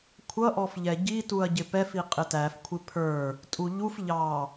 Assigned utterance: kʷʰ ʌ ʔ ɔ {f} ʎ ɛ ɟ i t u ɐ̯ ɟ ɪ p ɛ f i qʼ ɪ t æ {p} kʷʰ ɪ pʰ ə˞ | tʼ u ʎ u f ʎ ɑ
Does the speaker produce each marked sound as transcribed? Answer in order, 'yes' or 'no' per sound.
yes, no

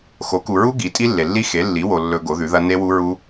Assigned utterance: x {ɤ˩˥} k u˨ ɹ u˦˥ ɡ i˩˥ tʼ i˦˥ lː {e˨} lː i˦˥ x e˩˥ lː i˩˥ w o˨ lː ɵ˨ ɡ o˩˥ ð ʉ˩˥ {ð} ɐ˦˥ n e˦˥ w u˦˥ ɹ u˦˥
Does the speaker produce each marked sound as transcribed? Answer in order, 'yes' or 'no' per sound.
no, yes, yes

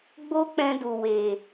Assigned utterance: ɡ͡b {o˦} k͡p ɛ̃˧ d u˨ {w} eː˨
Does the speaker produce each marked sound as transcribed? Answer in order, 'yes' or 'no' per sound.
yes, yes

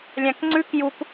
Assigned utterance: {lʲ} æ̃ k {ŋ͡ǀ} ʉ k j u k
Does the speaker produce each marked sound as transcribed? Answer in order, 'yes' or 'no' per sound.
yes, yes

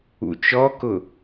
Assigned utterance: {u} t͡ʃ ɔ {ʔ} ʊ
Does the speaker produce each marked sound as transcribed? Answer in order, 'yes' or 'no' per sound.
no, no

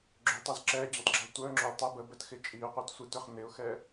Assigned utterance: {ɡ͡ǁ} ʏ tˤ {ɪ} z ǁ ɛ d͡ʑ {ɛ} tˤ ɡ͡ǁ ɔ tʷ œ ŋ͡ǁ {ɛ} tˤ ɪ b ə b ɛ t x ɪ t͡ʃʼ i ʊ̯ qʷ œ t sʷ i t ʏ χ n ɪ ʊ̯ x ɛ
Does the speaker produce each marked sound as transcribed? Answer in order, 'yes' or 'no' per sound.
yes, no, no, no

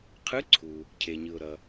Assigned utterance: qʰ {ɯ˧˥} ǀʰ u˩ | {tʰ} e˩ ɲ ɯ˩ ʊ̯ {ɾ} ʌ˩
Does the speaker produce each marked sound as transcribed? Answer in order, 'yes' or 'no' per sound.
yes, no, yes

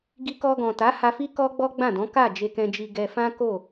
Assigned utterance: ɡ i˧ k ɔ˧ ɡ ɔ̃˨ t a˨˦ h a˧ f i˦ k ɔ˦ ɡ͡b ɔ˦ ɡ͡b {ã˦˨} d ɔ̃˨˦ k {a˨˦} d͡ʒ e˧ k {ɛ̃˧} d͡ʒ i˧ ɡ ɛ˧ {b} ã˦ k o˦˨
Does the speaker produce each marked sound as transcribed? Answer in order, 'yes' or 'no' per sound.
yes, no, yes, no

